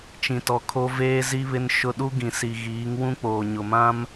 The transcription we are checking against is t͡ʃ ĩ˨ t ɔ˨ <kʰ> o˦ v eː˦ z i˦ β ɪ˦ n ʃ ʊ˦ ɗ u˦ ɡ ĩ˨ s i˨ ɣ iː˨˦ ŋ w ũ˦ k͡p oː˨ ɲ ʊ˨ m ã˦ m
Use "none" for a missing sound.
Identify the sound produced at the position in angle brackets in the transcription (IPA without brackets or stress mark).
kʰ